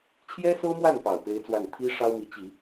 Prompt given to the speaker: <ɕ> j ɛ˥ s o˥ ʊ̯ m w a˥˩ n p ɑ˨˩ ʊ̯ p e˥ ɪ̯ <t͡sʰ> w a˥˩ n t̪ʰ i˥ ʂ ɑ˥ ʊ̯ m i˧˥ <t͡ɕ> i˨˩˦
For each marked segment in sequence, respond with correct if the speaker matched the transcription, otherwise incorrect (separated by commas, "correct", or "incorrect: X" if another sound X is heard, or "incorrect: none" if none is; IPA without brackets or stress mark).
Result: incorrect: t͡ɕʰ, incorrect: t͡s, correct